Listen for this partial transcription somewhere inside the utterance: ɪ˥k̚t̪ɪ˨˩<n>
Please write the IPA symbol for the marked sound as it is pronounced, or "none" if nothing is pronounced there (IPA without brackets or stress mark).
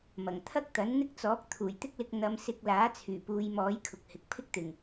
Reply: ŋ